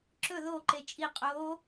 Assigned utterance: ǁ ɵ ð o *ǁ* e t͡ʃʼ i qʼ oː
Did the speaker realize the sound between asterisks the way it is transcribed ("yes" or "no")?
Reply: no